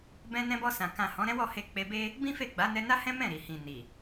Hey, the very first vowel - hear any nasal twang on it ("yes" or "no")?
yes